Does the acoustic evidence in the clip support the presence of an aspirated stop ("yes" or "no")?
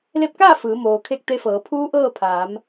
yes